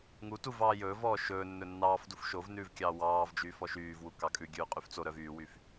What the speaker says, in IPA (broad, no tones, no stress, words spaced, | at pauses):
ŋu tuvɑː jɵːvɔː ʃɵː nːɵnːɑːfduf ʃovnʉːv kʲɑːwɑːvd͡ʒyː fɔʃyːvwu kɑkʼʉɡʲʉː qʼyft͡soɾœv yːwyf